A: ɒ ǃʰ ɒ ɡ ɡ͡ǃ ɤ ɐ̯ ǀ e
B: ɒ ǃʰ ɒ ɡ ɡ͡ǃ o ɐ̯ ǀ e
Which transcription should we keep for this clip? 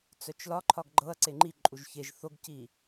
A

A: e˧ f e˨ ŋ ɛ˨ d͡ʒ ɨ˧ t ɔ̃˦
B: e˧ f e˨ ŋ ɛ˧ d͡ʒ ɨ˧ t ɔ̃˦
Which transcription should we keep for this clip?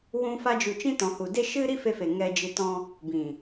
B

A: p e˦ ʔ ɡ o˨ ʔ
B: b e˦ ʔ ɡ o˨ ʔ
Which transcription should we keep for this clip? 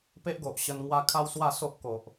A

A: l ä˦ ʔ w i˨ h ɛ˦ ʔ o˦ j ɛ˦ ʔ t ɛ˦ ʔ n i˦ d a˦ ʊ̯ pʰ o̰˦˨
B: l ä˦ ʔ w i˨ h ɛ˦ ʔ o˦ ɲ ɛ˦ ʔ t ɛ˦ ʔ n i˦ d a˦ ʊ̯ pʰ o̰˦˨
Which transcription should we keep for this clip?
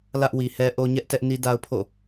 B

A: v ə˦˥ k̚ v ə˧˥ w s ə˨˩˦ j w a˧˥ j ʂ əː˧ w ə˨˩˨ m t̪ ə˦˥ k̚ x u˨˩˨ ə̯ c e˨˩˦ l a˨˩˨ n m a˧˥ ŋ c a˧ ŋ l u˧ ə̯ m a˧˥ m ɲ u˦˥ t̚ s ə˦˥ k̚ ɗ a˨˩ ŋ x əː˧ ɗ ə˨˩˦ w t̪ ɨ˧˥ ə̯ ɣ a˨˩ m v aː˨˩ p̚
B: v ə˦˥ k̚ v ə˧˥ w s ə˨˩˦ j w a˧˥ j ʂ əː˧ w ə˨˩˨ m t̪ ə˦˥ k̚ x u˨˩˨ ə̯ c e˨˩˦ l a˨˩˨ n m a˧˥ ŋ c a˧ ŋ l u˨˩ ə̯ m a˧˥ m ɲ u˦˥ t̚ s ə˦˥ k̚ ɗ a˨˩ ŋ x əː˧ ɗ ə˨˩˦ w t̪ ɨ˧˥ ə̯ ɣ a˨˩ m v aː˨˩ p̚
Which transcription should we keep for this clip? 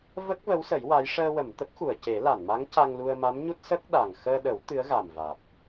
A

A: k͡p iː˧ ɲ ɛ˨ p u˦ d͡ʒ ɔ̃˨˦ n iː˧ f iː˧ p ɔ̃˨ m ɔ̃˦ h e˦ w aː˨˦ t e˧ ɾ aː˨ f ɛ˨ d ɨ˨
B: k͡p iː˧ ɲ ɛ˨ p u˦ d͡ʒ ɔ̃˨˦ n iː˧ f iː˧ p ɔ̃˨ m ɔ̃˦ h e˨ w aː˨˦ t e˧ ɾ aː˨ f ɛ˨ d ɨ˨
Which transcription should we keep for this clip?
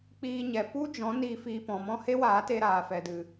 A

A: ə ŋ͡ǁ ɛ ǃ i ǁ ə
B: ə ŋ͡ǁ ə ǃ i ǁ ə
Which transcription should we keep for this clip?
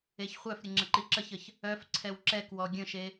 B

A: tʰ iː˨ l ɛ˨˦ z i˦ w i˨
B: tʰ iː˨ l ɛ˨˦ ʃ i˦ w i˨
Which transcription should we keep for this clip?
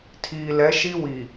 B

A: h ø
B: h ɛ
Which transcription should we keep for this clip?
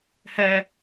B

